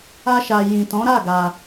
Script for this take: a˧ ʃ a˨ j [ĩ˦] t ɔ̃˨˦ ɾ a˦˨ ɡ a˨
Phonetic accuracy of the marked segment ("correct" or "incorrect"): incorrect